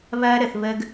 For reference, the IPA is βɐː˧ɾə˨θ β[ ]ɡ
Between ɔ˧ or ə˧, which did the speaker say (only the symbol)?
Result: ə˧